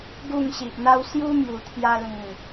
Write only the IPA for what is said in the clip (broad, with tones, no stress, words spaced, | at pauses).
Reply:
ɡu˥˧ŋɕi˨ʔn̪a˦w sju˦ mju˨˩t̪ʰja˧ lĩ˨˩